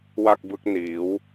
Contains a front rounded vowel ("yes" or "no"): no